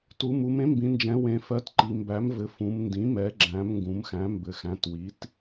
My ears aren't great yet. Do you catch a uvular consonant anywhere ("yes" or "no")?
no